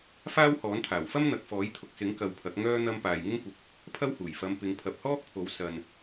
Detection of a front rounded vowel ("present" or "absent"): present